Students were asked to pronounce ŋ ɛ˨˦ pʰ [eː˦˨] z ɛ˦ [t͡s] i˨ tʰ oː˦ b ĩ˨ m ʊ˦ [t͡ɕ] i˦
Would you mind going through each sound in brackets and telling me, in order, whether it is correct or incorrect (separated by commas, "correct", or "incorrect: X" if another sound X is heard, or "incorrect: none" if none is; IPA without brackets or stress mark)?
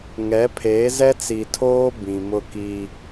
incorrect: eː˨˦, correct, incorrect: k